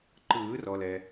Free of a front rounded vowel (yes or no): yes